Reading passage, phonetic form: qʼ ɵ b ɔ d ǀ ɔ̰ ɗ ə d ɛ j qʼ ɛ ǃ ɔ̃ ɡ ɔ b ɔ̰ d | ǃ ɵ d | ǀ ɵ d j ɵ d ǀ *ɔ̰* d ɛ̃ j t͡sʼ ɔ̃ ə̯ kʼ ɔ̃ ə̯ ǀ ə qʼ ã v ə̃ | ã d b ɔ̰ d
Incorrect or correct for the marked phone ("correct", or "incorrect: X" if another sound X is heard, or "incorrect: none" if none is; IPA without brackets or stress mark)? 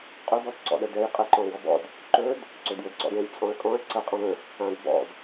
correct